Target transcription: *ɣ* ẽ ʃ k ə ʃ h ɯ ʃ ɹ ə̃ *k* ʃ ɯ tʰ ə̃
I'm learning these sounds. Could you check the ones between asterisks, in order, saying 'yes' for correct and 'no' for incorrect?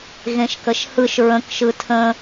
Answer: yes, yes

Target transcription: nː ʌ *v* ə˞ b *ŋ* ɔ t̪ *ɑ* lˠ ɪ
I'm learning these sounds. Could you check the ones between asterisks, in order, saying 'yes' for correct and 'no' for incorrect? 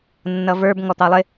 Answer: yes, yes, yes

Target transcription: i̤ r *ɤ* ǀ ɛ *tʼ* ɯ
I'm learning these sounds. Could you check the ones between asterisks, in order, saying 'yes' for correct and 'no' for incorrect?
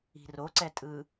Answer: no, yes

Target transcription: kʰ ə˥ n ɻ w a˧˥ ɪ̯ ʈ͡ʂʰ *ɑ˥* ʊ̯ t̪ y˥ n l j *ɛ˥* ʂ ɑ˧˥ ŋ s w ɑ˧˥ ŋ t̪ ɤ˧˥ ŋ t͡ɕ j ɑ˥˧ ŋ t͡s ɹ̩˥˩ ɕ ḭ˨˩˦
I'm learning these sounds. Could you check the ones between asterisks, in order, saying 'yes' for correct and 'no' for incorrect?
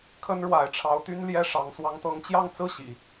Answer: no, yes

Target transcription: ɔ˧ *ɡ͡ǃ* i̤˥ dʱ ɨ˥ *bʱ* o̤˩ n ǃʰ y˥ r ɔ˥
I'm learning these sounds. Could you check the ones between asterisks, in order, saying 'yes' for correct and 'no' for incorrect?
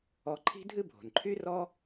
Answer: no, yes

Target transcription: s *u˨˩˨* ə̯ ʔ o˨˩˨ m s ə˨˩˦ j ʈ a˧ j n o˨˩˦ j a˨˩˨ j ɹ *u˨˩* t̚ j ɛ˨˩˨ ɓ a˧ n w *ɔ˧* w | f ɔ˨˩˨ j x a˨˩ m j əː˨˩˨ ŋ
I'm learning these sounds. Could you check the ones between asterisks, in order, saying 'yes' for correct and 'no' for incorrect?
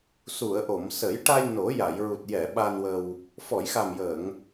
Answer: yes, yes, no

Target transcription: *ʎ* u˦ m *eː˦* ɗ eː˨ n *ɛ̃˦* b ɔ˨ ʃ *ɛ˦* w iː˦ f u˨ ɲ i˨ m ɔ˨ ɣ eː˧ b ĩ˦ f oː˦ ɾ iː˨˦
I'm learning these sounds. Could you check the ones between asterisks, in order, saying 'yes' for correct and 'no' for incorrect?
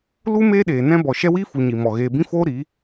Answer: no, yes, yes, yes

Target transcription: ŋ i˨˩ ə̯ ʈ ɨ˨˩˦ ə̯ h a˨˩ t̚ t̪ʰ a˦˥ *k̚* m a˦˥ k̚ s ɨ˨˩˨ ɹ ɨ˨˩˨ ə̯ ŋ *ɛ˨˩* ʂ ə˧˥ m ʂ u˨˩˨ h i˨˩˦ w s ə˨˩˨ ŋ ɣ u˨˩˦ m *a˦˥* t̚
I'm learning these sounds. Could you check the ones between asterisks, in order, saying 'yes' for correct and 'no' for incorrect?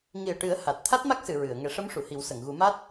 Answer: no, no, yes

